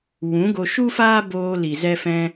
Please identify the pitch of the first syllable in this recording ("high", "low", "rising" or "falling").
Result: rising